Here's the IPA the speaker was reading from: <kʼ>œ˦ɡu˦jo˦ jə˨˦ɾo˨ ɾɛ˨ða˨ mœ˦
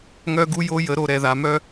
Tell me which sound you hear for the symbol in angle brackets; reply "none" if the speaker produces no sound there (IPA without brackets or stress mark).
ŋ